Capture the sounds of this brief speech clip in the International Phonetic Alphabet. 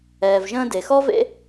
ɛː˨ v ʒ ə̃ː˧ d e˨ x ɔ˦ v ḛ˦

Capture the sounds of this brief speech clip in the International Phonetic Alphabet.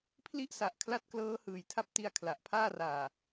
pʰ l i˥˩ ʔ s a˨˩ ʔ kʰ l a˦˥ t̚ k l ɤː˦˥ h ɯː˨˩ j tʰ a˦˥ p̚ t i˧ a̯ kʰ l a˨˩ ʔ pʰ aː˥˩ r aː˨˩

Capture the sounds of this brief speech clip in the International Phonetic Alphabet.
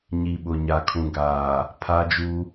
ɲ i˨ ɓ ʊ˨ ɲ a˨ kʰ ũ˨ ɡ aː˨ | pʰ a˦ d͡ʒ u˦

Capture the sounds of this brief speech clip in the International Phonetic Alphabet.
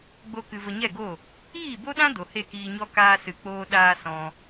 ɡ͡b o˦ k ɨ˧ v ə˧ ɲ ɛ˦˨ ɡ o˦˨ | iː˦˨ b o˦ ɗ ã˦ d o˨ h e˦˨ k iː˧ ɲ ɔ˦ k aː˧ s ɨ˨ k͡p oː˧ ɗ aː˧ s ɔ̃˧

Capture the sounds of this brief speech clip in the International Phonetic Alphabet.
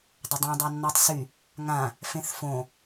dˤ ə dˤ ã dˤ a nː ɔ tˤ s y | ŋ ã | f ẽ θ f õ

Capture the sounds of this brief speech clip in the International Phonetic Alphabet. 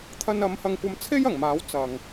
t̪ʰ ɐ˥ n ɐ˨˧ m h ɐ˧ ŋ kʷ ɐ˧ m t͡sʰ e˥ j ɐ˨˩ ŋ m aː˨˥ w t͡s ɐ˨ ŋ

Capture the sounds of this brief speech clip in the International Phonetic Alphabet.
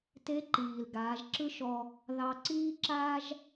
t e˧˥ ǃ iː˩ l ɡ aː˩˧ ʒ ǁ ɯ˥ ʃ ɔ˧ | ð ɑ˧ ǀ iː˥ ǁ aː˥ ʒ

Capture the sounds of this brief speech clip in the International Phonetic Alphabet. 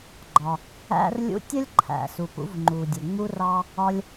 ɡ͡ǃ ɒ˩ | æ̰˧ r lʲ ṵ˧ tʲ ə˥ lʲ ǃʰ æ̰˩ s u˩ p ṵ˧ v ŋ͡ǃ u˩ dʲ ʊ˩ ŋ͡m u˧ r ɑ˧ | ɒ˧ lʲ

